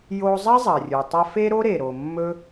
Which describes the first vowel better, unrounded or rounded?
rounded